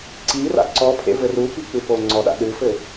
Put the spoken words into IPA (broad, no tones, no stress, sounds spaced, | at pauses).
ǀ i r a̰ ǀ ɔ pʰ ḛ v ɘ r u p i k͡p ɨ p o ŋ͡ǀ ɔ ɗ a̰ ɗ ɨ f ɘ